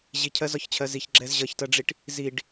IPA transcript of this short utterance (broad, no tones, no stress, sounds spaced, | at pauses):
ʑ i cʰ ɜ z ɒ ç t͡ɕʰ ɜ z i ç ɡ͡ǁ ɛ z ʑ ʌ ç t ɜ ɖ͡ʐ i ʈ | z i ɖ